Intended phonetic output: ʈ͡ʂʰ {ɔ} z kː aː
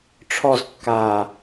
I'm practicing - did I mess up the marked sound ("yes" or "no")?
no